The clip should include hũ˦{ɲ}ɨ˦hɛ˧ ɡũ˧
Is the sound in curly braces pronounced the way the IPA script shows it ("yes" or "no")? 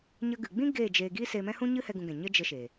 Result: yes